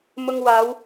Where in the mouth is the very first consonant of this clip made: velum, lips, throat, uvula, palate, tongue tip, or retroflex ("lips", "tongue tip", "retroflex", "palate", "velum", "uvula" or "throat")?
lips